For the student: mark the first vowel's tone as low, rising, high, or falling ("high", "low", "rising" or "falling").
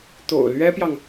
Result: low